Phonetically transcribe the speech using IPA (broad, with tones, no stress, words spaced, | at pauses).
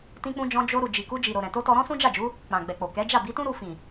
tĩ˧k͡pũ˧d͡ʒɔ̃˧ d͡ʒo˧ɾu˨ d͡ʒi˨ku˧d͡ʒi˨ ɾo˨ ɾɛ̃˨to˧tɔ˧ ɾɔ̃˦sũ˦d͡ʒa˦˨d͡ʒu˨˦ | k͡pã˨ɡ͡bɛ˨k͡po˨ kɛ˨˦d͡ʒa˦˨ bi˨˦tũ˦ ɾu˧fĩ˨